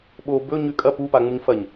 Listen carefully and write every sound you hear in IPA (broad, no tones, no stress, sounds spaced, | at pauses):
ɓ o b ɵ ɲ ʉ kʼ ɐ p u p a ŋ͡m u ɲ f ɐ ɲ